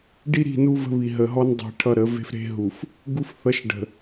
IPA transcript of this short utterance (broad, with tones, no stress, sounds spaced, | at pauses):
ɖ i˦ ɾ i̤˦˨ n u˦ v ə̤˦ β i˨ ɦ ə˨ ɦ ɔ˦ n dˤ i̤˨ ʈʰ ʌ˦ ɾ ə˨˦ v e̤˦ f ɾ e̤˦ ɦ u˨ f | ɡ u˦ f θ ʌ˨˦ ʃ ɖ ə̤˨